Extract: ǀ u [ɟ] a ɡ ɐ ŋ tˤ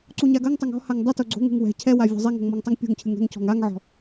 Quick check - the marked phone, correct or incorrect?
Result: incorrect